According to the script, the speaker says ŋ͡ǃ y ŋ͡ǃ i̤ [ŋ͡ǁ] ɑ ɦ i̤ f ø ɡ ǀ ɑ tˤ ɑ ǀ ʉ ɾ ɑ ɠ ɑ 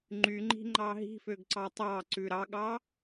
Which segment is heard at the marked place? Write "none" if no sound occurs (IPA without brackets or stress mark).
ŋ͡ǃ